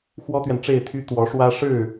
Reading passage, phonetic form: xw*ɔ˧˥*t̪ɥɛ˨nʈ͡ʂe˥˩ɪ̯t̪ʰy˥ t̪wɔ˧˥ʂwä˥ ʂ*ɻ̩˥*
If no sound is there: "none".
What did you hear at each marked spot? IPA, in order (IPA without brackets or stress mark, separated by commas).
ɔ˥, ɻ̩˥˩